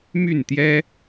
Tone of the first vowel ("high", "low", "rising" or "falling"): falling